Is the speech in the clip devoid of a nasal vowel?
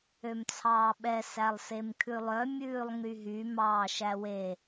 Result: yes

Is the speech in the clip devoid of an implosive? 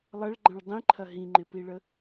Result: yes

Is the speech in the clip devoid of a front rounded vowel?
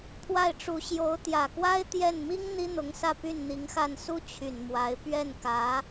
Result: no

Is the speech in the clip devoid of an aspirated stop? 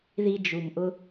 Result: yes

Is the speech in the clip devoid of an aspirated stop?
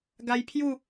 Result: no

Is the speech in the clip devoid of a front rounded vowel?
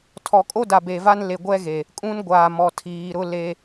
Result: yes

